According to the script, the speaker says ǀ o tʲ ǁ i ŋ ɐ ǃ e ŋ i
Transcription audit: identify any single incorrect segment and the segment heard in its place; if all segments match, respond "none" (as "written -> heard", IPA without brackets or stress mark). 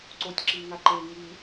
ɐ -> a